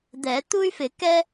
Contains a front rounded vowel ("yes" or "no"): yes